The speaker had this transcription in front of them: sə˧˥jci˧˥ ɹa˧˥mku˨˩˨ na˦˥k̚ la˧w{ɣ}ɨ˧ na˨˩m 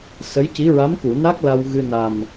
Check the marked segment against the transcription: correct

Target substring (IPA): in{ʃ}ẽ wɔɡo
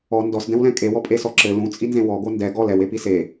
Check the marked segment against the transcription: incorrect: z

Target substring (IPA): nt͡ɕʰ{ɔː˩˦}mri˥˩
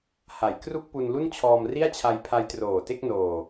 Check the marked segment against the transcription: incorrect: ɔː˧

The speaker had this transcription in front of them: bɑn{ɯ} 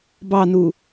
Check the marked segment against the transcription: incorrect: u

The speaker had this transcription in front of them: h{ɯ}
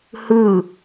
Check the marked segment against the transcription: correct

